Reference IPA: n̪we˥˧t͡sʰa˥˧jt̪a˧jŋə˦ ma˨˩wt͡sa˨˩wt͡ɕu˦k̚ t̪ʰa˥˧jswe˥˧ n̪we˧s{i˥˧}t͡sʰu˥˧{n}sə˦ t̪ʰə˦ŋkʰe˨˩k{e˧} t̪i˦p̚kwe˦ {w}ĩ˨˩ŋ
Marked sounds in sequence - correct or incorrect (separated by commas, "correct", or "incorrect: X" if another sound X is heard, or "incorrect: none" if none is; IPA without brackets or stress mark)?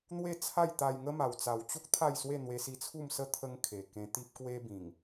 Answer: incorrect: i˧, incorrect: m, incorrect: ẽ˧, incorrect: b